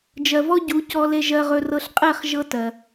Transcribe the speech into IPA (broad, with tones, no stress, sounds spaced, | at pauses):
d͡ʒ ɜ˨ v ɔ˦ ɟ u˨˦ c ɔ˧ l e˧ ʒ ɜ˧ ʁ ɵ˧ r ɤ˧ ɬ qʼ ɛ˦˨ χ ʒ ɤ˦ t ɜ˨